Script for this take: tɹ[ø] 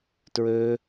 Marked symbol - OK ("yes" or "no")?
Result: yes